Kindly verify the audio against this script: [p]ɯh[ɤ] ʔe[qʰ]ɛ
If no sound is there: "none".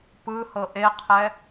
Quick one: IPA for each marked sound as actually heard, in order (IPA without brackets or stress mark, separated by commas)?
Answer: p, ɤ, qʰ